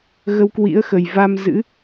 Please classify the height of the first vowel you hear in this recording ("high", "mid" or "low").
mid